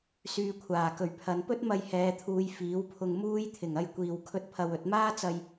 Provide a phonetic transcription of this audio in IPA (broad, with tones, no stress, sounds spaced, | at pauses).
s yː˧ kʷʰ aː˨˩ k ɵ˨˩ ɥ pʰ ɐ˨˧ n p ɵ˥ t̚ m ɐ˧ j h ɛː˨˧ t̪ʰ uː˨˧ j f iː˨˥ w pʰ ʊ˧ ŋ m uː˥ j t̪ʰ ɪ˨˩ ŋ ɐ˧ j kʷ iː˨ w kʰ ɵ˧ t̚ pʰ ɐ˨ w ɵ˨˥ t̚ m aː˥ t͡s ɐ˧ j